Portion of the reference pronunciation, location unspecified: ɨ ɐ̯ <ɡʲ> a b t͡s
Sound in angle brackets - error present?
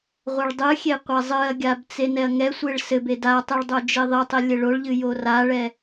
no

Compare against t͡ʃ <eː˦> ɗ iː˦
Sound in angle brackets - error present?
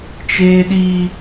no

